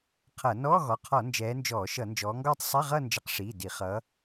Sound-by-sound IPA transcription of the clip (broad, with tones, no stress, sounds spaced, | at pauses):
qʰ ʌ˧˩˧ n ɔː˧˥˧ ɣ ɔ˩˧˩ qʰ ɔ˧˩˧ n d͡ʒ ɛː˨˦ n d͡ʒ ɔː˧˩˧ ʃ ʌ˧˩˧ n d͡ʒ ɔː˨˦ ŋ ɡ ɔː˥˧ tˤ sˤ i˧˥˧ ʁ ʌː˥˧ n d͡ʒ ʌ˨˦ q ʂ iː˩˧˩ d i˧˩˧ χ ʌː˨˦